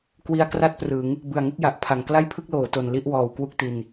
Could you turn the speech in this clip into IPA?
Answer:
k w i˧ a̯ k r a˥˩ t̚ p r ɯ˩˦ ŋ | b ɯ˨˩ a̯ ŋ u˥˩ k̚ j a˨˩ ʔ pʰ a˩˦ ŋ k l a˥˩ j pʰ ɯ˥˩ k̚ l oː˩˦ t o˨˩ n l i˥˩ ʔ w ɔː˨˩ w k w u˥˩ k̚ t i˧ n

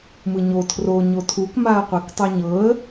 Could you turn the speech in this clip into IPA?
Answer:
m ɯ ɲ o tʰ r o ɲ o tʰ u k m a ə̯ qʷ e k tˤ u ɲ ɤ ə̯

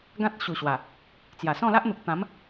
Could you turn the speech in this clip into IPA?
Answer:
ɡ ã˦ t̚ ɕ u˨˩ ɕ w a˨˩ | t͡s j a˨˩ s ɔ̃˥˧ l a˦ ʔ n̪ u˨ k̚ t̪ ã˨˦ m

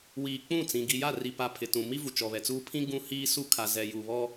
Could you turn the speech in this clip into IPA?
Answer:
w iː˨ k͡p ũ˦˨ t͡s ĩ˨ ɡ i˨ j a˦˨ r i˨ p a˨ pʰ ɪ˨ t ũ˨ m i˦ v u˨ t͡ʃ ɔ˨ β ɛ˨ t͡s uː˦ pʰ ĩ˦ ɡ ũ˦ h iː˦ s u˦ kʰ a˨ z ɛ˨ j u˨ β ɔ˦

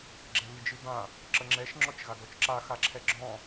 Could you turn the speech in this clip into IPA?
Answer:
ɡ͡ǁ ɛ β ɨ d͡ʒ ɨ b ã | ǁ ə ŋ͡ǁ ɛ ʃ ŋ͡ǁ ɔ t͡ʃ ɣ a ɡ ɔ t͡ʃ ǁ a x a ǁʰ ɛ ɡ͡ǁ ɔ̃

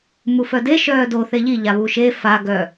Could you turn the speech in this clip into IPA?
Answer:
m u f œ d e ʃ œː d o θ e ʎ i ʎ a β u ʃ e f a ɡ œ

